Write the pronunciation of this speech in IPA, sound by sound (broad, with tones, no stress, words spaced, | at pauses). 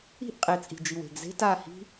i̤˦˨ʔ qʼe˨t͡sʼi̤˨d͡ʒi˨w e̤˨ɡze̤˦ta˦˨hi̤˦